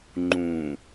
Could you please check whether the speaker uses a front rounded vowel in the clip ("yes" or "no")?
no